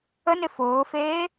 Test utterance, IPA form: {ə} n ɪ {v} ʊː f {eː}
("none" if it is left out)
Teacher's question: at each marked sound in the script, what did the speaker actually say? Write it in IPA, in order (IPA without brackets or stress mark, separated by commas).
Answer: ə, f, eː